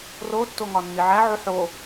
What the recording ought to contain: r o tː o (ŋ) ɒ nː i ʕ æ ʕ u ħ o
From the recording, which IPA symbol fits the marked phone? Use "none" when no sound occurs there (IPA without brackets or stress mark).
ŋ